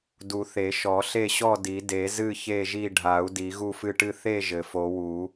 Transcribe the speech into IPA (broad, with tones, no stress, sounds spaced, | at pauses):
d u˨˩˦ θ e˨˩˦ ʃ ɔ˨˩˦ ɬ e˥˨ ɕ ɔ˥˨ d i˨˩˦ d e˨˩˦ z ɨ˥˨ ç e˥˨ ʒ i˥˨ ɖʱ a˨˩˦ u̯ d i˨˩˦ ɣ u˥˨ f ɨ˥˨ ʈ ɨ˥˨ θ e˥˨ ʒ ɘ˨˩˦ f o˨˩˦ w u˨˩˦